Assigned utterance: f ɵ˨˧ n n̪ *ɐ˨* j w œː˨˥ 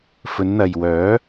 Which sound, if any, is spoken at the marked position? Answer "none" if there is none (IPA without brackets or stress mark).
ɐ˨